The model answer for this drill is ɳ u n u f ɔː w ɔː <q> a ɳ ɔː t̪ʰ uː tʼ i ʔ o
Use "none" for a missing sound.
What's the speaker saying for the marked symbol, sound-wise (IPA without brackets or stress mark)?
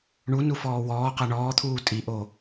q